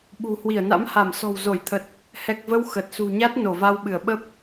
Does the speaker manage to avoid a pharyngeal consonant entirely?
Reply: yes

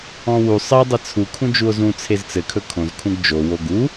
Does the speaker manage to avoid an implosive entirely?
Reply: yes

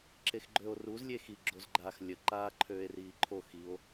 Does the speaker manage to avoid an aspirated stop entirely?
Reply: no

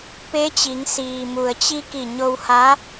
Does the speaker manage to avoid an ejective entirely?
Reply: yes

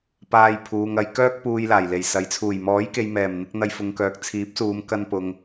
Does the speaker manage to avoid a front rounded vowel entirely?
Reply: no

